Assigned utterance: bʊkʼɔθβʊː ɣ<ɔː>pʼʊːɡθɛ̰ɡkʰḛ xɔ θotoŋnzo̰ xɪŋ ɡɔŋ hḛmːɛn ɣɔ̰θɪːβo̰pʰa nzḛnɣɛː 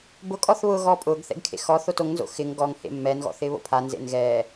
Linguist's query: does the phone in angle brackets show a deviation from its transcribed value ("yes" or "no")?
no